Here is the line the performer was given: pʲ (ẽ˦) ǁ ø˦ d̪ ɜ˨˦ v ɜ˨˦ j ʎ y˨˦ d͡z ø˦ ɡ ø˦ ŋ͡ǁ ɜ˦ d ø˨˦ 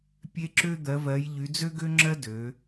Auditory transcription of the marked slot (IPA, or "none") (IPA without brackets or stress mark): e˦